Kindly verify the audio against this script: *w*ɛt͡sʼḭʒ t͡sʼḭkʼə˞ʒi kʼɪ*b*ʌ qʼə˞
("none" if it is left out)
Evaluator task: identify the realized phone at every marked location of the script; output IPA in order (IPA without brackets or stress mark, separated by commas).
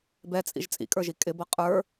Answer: b, b